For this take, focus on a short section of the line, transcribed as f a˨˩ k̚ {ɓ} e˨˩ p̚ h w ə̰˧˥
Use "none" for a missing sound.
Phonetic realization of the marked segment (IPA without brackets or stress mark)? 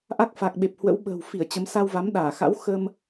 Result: ɓ